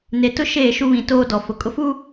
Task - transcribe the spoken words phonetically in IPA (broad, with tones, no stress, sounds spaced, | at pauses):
n e˨ t ʊ˦ ʃ eː˦˨ ʃ u˦ β ĩ˨ t oː˦ d ɔ˨ f ʊ˨ kʼ ʊ˦ f uː˦